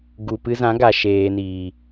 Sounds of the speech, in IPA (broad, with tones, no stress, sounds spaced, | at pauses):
ɡ u˨ p ɨ˧ z ã˨˦ ɡ a˨ ʃ eː˨ n iː˨